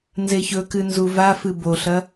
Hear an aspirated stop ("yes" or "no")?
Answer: no